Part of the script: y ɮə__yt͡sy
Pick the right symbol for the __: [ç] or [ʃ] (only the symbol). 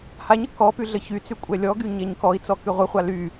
ç